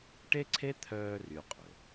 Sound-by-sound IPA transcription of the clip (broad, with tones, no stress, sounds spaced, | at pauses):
ʈ e˥ ǀʰ e˥ t̪ʰ œː˦ r y˦ qʼ ɵ˩